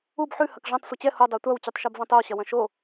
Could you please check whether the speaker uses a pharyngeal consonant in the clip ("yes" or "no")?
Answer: yes